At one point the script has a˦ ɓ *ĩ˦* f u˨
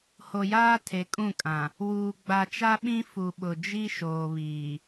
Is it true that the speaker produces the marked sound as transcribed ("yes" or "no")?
yes